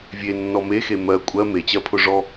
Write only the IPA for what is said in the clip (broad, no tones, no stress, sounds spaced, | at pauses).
vʲ e nː ɔ m e x e m ɜ kʷʼ ɜ m e t͡ɕ ɜ pʰ ʊ ʐ ɔ